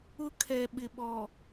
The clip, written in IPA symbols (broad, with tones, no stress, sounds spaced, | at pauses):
ʊ˦ kʰ ɛ˨ ɓ ɪ˨ ɓ ɔ˨